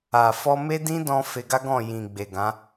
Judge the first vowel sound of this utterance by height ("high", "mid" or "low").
low